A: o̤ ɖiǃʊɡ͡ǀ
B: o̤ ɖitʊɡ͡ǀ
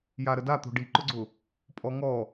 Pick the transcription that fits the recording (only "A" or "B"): A